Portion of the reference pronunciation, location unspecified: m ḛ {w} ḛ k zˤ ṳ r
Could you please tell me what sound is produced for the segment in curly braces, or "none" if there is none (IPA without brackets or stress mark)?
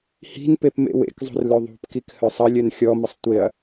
w